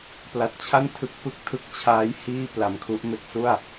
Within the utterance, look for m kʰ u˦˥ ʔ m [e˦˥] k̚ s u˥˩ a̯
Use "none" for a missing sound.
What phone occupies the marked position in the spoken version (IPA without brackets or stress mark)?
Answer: e˦˥